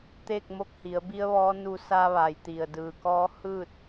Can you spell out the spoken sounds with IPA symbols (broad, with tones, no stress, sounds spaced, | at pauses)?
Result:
t̪ eː˥˨ k̚ m o˧˥ k̚ h i˩˧ ə̯ b i˧˥ ə̯ ʋ ɔː˧˥ n u˧ s a˧ ʋ a˩ j t̪ i˩ ə̯ d ɯː˩ k ɔː˧˥ h ɯː˥˨ t̚